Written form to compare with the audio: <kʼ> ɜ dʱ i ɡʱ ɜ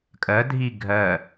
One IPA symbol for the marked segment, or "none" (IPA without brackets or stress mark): kʼ